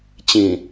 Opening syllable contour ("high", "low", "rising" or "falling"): low